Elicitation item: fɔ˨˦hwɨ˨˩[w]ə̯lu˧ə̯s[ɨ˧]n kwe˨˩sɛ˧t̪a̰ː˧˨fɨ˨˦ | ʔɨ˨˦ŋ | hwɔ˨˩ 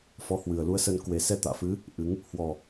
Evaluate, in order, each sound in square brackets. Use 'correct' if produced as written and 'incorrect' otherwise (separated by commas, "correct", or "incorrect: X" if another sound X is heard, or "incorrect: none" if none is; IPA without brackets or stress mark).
incorrect: none, incorrect: ə˧